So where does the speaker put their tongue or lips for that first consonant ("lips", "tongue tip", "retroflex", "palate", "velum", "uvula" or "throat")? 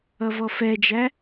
lips